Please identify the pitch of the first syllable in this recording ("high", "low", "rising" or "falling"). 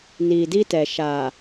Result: low